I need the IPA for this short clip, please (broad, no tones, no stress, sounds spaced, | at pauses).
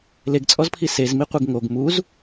l e ɡ t͡sʼ ɔ z pʰ i s e z m i qʷ e ɡ ŋ o ɡ m u z